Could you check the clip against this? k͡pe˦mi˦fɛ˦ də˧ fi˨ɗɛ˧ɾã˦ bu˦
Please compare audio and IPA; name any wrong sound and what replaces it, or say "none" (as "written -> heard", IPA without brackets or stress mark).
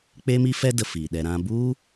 none